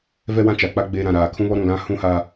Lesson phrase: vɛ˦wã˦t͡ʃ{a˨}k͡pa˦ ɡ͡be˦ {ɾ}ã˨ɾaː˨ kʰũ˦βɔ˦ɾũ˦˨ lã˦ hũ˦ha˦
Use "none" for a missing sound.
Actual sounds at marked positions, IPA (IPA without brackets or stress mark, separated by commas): a˨, ɾ